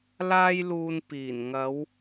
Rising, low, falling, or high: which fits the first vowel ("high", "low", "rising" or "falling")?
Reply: high